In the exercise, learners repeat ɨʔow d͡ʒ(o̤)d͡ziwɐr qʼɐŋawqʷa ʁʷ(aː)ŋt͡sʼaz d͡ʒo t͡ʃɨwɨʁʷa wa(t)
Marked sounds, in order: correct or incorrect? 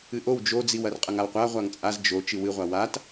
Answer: incorrect, incorrect, correct

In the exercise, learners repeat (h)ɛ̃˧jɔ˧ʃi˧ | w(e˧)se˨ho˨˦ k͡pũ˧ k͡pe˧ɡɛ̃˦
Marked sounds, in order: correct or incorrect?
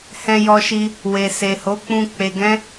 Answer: correct, incorrect

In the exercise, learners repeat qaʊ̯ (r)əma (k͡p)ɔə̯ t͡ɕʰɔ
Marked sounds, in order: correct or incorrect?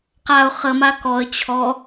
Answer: incorrect, incorrect

